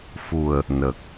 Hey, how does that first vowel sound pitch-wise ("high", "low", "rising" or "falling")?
low